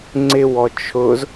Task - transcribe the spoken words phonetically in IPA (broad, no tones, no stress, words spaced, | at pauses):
ŋ͡ǀɪwɔ t͡ʃʰʊz